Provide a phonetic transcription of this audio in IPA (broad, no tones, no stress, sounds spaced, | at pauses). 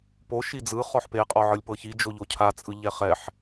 p o ʃ i d͡z ɯ χ ɔ ħ p e qʼ ɔ ʕ ɯ lʲ p ɤ ç i d͡ʒ o ʎ o cʰ a t͡sʼ ɯ ʎ ɛ χ ɛ ħ